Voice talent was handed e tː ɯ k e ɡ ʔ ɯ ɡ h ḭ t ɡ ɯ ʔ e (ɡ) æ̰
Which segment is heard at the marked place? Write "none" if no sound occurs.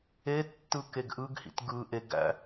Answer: ɡ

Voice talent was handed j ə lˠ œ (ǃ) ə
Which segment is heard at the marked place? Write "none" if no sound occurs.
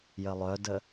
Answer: d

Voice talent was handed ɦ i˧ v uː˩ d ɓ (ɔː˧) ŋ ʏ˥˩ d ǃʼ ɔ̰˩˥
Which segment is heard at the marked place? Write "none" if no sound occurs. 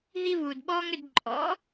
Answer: ɔː˧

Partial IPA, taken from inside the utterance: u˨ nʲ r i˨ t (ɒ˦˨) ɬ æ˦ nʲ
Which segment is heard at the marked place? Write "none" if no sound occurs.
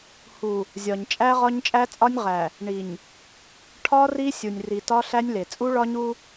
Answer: ɒ˦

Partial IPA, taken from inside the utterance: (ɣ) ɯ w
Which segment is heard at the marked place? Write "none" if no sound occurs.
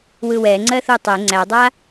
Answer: w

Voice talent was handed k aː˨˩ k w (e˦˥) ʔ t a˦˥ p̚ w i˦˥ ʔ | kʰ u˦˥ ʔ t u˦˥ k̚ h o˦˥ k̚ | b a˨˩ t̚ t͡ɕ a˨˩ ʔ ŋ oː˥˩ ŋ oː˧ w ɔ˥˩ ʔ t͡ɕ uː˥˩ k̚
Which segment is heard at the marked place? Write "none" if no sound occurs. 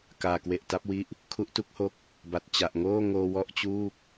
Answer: e˨˩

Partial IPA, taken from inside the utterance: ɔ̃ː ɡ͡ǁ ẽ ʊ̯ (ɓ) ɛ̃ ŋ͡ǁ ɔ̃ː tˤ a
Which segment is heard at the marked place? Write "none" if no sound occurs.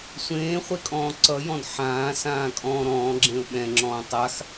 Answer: ɓ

